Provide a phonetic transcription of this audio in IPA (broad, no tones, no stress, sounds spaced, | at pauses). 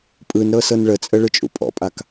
pʼ ɯ n ɾ ɤ s ɤ n ɭ ə t͡sʼ ə ɭ ɯ t͡ʃʼ ṵ pʼ ɔ̰ pʼ a k